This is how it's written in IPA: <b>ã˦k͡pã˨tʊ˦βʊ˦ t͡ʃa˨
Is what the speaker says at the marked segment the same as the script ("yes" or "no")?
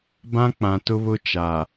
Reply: yes